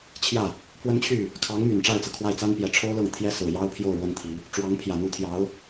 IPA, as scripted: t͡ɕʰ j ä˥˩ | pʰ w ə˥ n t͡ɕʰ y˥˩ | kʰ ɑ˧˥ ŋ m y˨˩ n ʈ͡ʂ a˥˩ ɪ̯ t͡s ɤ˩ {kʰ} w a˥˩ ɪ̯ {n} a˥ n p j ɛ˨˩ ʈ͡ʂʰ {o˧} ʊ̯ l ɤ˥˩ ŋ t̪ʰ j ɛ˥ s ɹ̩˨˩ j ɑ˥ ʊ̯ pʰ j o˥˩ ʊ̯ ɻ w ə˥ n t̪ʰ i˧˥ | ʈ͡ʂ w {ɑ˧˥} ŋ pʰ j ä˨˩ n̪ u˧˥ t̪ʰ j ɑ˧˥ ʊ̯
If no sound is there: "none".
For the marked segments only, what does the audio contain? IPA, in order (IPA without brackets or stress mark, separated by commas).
kʰ, t͡s, o˥, ɑ˧˥